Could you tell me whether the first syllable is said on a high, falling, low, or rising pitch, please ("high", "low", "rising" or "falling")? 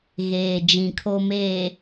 low